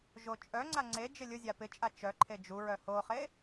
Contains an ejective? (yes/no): yes